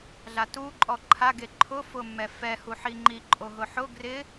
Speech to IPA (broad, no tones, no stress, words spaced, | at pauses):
ɮatuǃʼɔ ǃʰaɡe ǃʰʊ fʊmːɛfɛ huħiŋ͡ǃi ǃʼoɦʊħʊ ɡrɪ